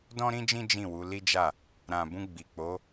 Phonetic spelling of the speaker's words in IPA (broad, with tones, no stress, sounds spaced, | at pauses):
d ɔ̃˦ ɾ ĩ˦ d͡ʒ ĩ˦ d͡ʒ ĩ˦˨ w u˨˦ l i˦ d͡ʒ a˦˨ | ɾ ã˨ b ũ˧ ɡ͡b i˨ k͡p o˨˦